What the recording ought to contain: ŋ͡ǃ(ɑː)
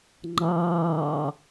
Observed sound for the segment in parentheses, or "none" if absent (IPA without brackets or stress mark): ɑː